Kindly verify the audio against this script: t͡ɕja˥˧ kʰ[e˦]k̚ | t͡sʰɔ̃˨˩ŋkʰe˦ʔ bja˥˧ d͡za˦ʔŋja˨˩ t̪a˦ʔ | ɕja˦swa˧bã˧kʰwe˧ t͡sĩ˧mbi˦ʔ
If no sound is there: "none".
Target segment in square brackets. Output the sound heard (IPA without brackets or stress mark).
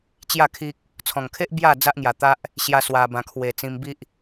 i˦